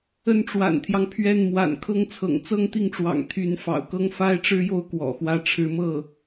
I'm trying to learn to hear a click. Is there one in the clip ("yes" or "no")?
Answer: no